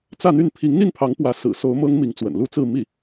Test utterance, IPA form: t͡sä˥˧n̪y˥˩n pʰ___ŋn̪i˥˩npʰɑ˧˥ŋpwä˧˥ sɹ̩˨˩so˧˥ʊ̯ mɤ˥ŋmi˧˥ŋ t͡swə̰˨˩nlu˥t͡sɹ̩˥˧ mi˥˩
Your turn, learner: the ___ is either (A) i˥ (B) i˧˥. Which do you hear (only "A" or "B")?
B